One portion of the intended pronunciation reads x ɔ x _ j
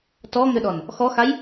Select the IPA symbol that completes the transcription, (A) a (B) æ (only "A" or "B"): A